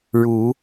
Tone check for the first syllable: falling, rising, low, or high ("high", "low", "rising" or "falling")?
rising